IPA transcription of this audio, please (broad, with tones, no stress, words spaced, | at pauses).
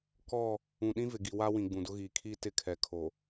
kɔ˦˨ | ũ˨ɗĩ˦vɪ˨ɡi˨ wa˦wĩ˨ ɡ͡bũ˨dʊ˦ɣiː˨ kʰiː˦tɪ˦˨ kʰɛ˨kʰo˨